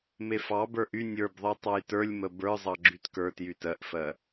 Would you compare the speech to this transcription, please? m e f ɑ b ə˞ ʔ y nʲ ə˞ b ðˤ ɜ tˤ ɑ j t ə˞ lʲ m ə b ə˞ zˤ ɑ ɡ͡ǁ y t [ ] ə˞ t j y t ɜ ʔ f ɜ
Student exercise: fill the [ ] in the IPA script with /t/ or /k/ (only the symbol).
k